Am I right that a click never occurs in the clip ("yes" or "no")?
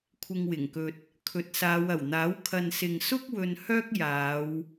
yes